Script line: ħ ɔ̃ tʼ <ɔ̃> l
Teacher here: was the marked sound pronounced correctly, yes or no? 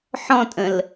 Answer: no